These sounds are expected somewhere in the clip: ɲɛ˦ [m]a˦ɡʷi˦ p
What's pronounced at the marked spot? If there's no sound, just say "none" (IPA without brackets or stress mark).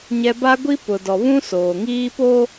b